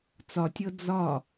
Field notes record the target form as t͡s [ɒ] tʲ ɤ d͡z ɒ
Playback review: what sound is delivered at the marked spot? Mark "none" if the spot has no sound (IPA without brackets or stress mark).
ɒ